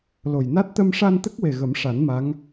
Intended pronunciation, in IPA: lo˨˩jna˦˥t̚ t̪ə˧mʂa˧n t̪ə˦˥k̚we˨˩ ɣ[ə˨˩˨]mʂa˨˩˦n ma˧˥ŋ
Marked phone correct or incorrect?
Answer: incorrect